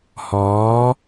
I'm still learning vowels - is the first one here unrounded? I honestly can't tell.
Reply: no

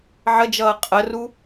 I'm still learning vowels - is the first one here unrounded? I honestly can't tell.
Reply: yes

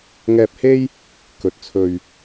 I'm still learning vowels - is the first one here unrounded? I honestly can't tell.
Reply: yes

